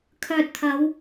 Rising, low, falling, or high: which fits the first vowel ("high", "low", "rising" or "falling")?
low